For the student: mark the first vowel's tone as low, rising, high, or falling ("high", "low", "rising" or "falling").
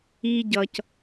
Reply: high